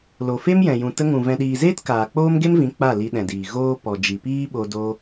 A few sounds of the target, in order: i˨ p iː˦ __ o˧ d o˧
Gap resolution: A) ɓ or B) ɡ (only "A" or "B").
A